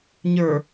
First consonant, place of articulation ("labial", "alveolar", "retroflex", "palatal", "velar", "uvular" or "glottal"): palatal